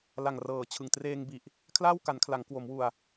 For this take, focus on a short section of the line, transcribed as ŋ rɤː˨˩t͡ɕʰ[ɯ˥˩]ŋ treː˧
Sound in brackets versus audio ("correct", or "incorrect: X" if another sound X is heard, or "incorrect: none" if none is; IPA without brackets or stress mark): incorrect: ɯ˨˩